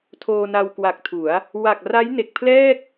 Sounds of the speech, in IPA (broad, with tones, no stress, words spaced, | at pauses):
tʰoː˧na˧wkwa˨˩k̚tʰu˩˦a̯ | wa˨˩k̚ ra˦˥jne˨˩k̚pʰlɛː˥˩k̚